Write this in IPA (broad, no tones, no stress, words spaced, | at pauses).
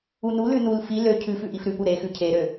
unulʉ nul fi lø cʰʉ fʉʔifɾʉpu ɾexʉ cʰeɾø